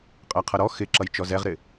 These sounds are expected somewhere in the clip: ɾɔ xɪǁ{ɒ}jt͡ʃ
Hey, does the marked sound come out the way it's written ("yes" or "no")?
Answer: no